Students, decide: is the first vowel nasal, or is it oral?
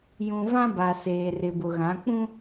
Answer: nasal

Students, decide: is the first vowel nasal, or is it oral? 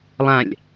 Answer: nasal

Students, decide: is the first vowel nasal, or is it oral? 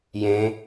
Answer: nasal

